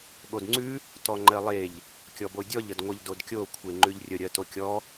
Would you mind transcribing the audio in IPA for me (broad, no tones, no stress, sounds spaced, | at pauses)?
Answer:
ɠ o d ŋ͡ǀ ʉ | t ɔ ŋ͡ǃ ɜ lˠ e ʎ | kʲ ɔ b o dʲ ɔ ʎ ə d ŋʷ ə ʎ d o d kʲ o kʷʰ e ŋ͡ǃ ʉ ʎ rʲ ə ɾʲ ɜ t o kʲ ɔ